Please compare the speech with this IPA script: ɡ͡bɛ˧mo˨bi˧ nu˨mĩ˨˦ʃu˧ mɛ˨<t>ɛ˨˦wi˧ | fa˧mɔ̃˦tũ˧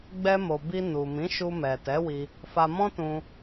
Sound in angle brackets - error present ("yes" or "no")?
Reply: no